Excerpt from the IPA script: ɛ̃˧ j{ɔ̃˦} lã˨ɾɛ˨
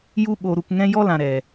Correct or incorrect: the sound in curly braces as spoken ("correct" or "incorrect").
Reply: incorrect